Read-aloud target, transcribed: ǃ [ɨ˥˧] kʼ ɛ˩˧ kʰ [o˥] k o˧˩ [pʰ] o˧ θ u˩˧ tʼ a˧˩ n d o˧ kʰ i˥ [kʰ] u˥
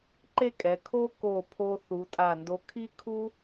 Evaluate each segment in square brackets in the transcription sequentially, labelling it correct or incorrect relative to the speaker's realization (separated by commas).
incorrect, correct, correct, correct